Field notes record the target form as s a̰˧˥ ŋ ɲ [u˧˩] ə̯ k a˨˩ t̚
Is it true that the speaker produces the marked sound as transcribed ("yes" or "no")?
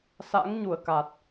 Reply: yes